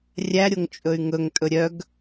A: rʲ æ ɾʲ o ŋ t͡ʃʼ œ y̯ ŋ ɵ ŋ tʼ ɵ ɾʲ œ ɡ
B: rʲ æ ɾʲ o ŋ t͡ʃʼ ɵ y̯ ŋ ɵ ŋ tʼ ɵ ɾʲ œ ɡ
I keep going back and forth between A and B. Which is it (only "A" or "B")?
B